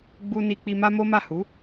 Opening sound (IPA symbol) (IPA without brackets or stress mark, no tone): ɡ͡b